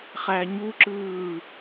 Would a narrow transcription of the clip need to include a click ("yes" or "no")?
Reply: yes